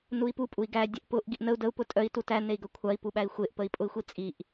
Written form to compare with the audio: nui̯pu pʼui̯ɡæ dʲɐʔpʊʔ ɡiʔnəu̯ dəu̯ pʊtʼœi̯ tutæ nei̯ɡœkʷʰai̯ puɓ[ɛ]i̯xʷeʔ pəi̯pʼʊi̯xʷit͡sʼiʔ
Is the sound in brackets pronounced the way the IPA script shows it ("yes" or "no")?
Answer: no